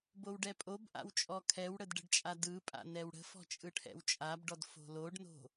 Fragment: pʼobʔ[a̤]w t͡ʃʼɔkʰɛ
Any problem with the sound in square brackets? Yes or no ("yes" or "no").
yes